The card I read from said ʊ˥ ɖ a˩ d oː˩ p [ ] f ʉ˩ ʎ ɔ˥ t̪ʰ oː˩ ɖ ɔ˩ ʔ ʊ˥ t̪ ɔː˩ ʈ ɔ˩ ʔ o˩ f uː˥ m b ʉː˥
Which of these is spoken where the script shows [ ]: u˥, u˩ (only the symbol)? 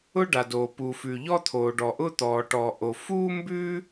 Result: u˩